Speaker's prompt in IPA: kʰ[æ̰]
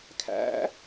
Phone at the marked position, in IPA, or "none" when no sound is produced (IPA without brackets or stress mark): æ̰